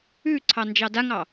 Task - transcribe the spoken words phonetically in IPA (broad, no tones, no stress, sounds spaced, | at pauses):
ʉ ǀʰ ɑ n d͡ʒ ɑ d a ŋ ɑ